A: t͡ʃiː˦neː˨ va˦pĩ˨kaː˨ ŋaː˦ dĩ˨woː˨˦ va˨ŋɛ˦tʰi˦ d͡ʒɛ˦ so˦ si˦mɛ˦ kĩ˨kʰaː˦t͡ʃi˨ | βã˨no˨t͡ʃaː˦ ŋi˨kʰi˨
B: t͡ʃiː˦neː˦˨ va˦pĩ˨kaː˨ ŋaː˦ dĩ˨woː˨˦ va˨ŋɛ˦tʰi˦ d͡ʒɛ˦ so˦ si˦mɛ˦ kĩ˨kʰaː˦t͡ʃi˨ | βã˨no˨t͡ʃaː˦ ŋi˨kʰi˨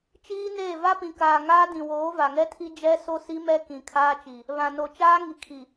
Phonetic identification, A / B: B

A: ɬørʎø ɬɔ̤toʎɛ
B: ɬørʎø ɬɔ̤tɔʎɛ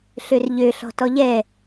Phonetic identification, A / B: B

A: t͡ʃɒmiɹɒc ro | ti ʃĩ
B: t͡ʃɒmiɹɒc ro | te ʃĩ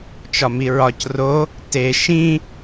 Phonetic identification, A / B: B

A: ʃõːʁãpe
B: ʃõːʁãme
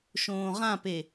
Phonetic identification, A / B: A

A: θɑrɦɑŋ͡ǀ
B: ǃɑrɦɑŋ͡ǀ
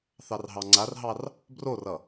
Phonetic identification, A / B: A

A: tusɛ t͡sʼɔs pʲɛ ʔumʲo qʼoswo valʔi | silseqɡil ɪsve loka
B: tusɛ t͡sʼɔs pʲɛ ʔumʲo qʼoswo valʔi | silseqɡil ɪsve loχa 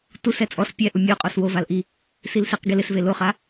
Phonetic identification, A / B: B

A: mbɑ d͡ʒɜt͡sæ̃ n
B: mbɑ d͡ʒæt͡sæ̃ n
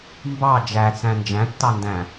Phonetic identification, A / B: B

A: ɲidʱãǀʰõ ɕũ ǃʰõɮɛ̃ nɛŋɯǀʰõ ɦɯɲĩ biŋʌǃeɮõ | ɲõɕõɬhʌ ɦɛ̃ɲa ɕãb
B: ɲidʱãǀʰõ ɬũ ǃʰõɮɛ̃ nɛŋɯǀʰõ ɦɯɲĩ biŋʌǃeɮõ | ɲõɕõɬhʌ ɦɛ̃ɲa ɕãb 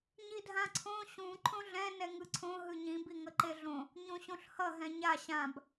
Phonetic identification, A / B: A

